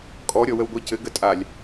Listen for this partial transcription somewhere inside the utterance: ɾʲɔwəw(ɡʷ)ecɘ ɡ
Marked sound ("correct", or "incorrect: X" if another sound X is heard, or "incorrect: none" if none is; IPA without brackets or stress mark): correct